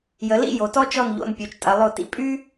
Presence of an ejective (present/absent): present